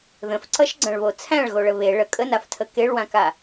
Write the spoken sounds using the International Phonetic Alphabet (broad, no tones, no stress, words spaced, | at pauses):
ðə̃fǀʌʃɡ͡ǀɐ̃ɭβo t͡sʰæ̃ɭɣoɭə βe ɭə kʼənaftʰə keɭwãka